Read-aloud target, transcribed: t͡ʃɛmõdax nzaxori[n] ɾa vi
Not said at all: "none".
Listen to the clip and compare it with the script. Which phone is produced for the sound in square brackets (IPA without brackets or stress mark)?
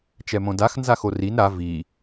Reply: n